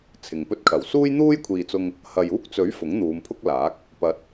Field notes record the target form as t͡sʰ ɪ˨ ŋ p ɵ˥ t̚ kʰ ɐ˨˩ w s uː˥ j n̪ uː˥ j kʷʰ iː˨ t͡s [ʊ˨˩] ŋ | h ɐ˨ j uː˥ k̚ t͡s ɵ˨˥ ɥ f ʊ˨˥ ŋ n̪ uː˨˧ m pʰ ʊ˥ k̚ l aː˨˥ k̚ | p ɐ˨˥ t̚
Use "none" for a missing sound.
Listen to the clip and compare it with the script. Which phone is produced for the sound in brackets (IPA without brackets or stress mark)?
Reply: ʊ˧